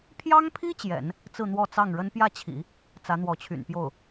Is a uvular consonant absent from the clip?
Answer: yes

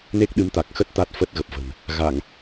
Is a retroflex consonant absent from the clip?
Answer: yes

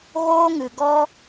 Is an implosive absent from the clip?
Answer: yes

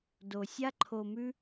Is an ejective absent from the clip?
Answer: yes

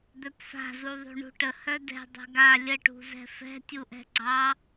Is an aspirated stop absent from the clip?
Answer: yes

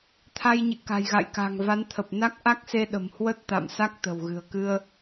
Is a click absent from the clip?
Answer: yes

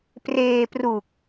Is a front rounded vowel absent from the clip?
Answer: yes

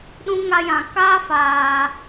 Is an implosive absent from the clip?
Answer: no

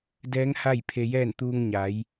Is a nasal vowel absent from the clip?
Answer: yes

